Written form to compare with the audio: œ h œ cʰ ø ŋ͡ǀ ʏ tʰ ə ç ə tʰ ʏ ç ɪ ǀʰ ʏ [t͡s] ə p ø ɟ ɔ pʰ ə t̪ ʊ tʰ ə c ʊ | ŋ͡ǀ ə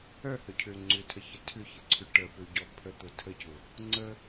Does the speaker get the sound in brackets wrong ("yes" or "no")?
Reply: yes